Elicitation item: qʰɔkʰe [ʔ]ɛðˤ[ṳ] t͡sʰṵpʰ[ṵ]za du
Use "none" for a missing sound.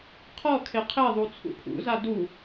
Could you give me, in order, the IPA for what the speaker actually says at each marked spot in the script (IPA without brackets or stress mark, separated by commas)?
qʰ, u, ṵ